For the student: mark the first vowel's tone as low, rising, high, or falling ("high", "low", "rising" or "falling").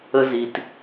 high